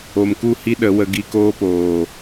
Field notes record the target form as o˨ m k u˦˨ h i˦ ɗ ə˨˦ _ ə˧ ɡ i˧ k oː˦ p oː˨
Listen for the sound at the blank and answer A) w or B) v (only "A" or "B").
A